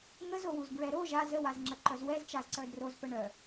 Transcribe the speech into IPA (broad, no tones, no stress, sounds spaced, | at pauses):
ŋ ə z o w u z b ɹ ɛ ɾ o ʒ a z ə w a z ŋ͡ǁ ə ǃ œ z w ɛ z t͡ʃ a z ǀ œ d r o z p ə ɳ œ